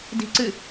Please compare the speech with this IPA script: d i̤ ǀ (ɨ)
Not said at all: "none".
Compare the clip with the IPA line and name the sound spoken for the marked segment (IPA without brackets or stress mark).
ɨ